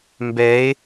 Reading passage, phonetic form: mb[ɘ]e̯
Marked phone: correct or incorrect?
incorrect